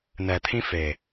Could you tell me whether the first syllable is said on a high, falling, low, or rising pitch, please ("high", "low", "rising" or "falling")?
low